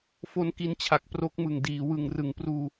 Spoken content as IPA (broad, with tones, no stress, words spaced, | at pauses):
fo˦˥nki˧nt͡ɕʰa˨˩k̚ pro˦˥k̚mɯ˨˩ŋdiː˩˦ wɯ˨˩ŋrɯ˩˦ŋpruː˧